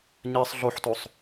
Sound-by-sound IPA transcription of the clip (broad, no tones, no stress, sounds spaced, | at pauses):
ɲ ɛ sˤ ɮ o ħ t o sˤ